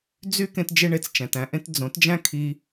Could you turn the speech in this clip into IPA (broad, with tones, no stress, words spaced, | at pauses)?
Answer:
d͡zy˦ kẽ˦td͡ʒe˦ ɳe˧t͡st͡ʃæ̃˨tæ̃˧ʔẽ˦t d͡zõ˨˦td͡ʒæ̃˦ kʰi˧